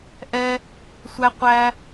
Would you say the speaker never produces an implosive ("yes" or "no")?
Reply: yes